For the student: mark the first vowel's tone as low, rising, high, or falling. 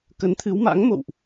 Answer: rising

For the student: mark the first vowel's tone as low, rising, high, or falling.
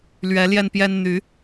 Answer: rising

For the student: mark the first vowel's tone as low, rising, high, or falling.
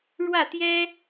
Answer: falling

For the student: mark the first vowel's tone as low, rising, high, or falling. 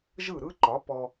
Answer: falling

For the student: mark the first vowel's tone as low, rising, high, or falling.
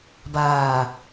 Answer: low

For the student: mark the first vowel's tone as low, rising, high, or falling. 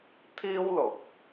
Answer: high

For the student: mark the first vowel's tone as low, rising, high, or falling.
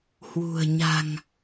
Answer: low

